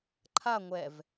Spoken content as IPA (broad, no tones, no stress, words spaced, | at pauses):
ǃʰa ŋʷɛv